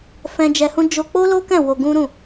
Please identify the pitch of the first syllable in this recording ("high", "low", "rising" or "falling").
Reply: high